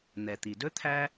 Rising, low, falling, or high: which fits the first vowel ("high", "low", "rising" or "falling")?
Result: low